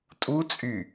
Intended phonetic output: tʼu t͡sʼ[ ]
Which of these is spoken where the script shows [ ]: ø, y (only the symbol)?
y